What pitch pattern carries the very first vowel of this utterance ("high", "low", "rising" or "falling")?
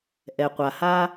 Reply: low